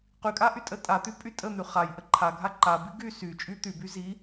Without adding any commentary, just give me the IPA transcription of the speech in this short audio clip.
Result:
q y kʼ a ʔ y tʼ ə tʼ a t̪ y pʼ y tʼ ə n̪ y χ a j ʔ ə ǃʰ a ɡʱ a ǃ a b i ɡ y s y t͡ʃʼ y t̪ y b y z i

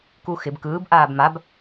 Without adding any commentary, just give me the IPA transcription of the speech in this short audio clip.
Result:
k u x ɪ b k ɯː b ʔ aː b m a b

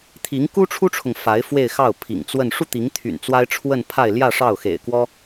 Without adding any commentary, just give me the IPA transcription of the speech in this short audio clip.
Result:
t̪ʰ i˧˥ ŋ k u˥ ʈ͡ʂʰ u˥ ʈ͡ʂʰ ʊ˨ ŋ f a˧˥ ɪ̯ f w e˥˧ ɪ̯ x ɑ˥˩ ʊ̯ pʰ ḭ˨˩ ŋ t͡s w ə˥˧ n ʂ u˥˩ t̪ i˧˥ ŋ t̪ʰ y̰˨˩ n t͡s w a˥ ɪ̯ ʈ͡ʂʰ w ə˥˧ n pʰ a˥˧ ɪ̯ l j ä˥˧ ʂ ɑ˥˩ ʊ̯ x ḛ˨˩ ɪ̯ k w ɔ˥

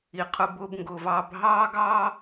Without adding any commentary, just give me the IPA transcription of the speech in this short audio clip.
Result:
i˩ qʰ ʊ˨ b ʊː˨ b ŋ ɡ ʊː˩ v ɑː˨ b ɦ ɑː˦ ɡ ɑː˦

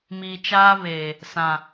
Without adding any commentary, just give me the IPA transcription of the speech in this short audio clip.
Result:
m iː˨ t͡ʃ aː˦ β eː˨ | s ã˨

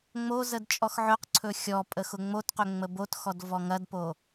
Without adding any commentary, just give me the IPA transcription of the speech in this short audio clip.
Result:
ŋ͡m o z ə d t͡ʃʼ ɔ x ʕ ɵ q ǀʰ ɵ xʲ ɔ pʼ ə x ʊ ŋ͡m o t q ɵ ŋ͡m ə b o t x ɔ d v ɔ ŋ ɐ d p o

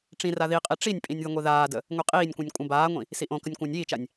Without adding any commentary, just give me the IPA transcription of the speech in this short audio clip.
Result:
ʈ͡ʂ ĩ r a ð i qʼ i ʈ͡ʂ i nʲ pʼ ĩ nʲ ð ə ŋʷ i ð aː d ə | ŋʷ i qʼ iː nʲ kʷ ĩ nʲ kʷʼ ə̃ b aː ŋʷ ĩ | s i ʔ õ k ə nʲ kʷ ə̃ː nʲ iː t͡ʃ a nʲ

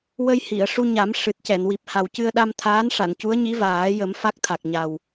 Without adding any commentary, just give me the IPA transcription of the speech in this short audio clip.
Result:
w ə˧ j h i˨˩˨ ə̯ ʂ u˧ ɲ a˨˩˦ m ʂ ɨ˨˩ t̚ c ɛ˨˩˨ n w i˨˩ p̚ h a˨˩ w c ɨ˧ ə̯ ɗ a˧ m t̪ʰ aː˧˥ n ʂ a˨˩˨ n c u˧˥ ə̯ ɲ i˧˥ v aː˨˩˦ j ə˨˩˦ m f a˦˥ k̚ t̪ʰ a˨˩ k̚ ɲ a˨˩ w

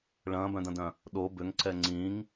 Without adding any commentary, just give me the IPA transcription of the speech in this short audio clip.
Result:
ɭ ɐ̃ː b œ̃ d ɐ̃ d œ̃ | ɗ o b ʏ ŋ ǀ ɛ ŋ͡ǀ ĩ ŋ

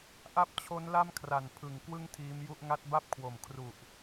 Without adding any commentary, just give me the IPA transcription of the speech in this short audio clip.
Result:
ʔ a˦˥ p̚ t͡ɕʰ o˦˥ n l a˥˩ m kʰ r a˨˩ n pʰ ɯ˨˩ ŋ k w ɯ˥˩ ŋ tʰ iː˦˥ m j u˥˩ ʔ ŋ a˦˥ t̚ b a˥˩ p̚ kʰ w o˨˩ m kʰ r u˨˩ ʔ

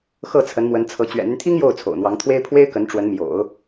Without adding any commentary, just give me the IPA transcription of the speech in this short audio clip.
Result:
x ɤ˥˩ t͡sʰ ə˧˥ n m w ə˧˥ n t͡sʰ ɤ˧˥ t͡ɕ ɥ ɛ̰˨˩ n̪ y˦ n t̪ʰ i˥ ŋ j o˥˩ ʊ̯ t͡sʰ o̰˨˩ ʊ̯ n̪ w ɑ˧˥ ŋ t̪ʰ w e˥ ɪ̯ pʰ w e˥ ɪ̯ k ə˧˥ n ʈ͡ʂ w ə˧˥ n m j o̰˨˩˦ ʊ̯

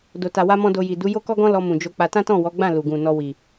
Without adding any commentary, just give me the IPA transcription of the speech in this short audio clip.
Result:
d o˧ t a˧ w a˧ m ɔ̃˧ d o˧ j i˨ d u˨˦ j o˦ k ɔ˦ ɡ ɔ̃˦ l ɔ˧ m ũ˨ d͡ʒ o˧ k͡p a˧ t ã˦ t ɔ̃˦˨ w ɔ˨˦ ɡ͡b ã˦˨ l u˨ ɡ ũ˨ n ɔ˧ w i˨

